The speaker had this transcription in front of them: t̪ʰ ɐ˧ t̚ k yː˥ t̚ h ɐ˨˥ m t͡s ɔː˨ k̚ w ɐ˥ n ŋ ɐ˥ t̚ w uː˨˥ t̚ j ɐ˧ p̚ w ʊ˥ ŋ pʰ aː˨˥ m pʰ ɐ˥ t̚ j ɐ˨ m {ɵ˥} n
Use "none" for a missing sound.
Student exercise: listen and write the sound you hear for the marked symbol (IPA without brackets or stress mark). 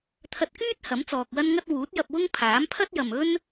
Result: ɵ˥